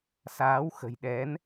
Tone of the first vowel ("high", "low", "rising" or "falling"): rising